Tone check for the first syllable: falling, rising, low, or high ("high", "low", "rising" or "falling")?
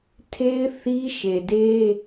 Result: high